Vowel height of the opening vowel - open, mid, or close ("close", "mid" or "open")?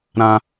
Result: open